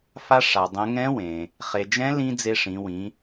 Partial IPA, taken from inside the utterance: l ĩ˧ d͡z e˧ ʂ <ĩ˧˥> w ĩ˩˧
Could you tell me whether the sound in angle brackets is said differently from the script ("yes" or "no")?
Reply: yes